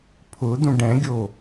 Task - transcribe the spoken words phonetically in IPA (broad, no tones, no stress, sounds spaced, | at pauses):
pʰ ʊ d̪ ũ ɖ ɛ̃ ɡʲ o